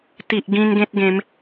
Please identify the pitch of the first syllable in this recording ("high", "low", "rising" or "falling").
low